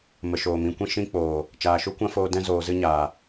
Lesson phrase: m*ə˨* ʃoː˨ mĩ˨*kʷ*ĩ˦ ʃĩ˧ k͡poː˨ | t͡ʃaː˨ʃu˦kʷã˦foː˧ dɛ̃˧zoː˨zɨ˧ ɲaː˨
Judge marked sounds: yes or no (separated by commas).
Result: yes, yes